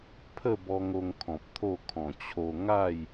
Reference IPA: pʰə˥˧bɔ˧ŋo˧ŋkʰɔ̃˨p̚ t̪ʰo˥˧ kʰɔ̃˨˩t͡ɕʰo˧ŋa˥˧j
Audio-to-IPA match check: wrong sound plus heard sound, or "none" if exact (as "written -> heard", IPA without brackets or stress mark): none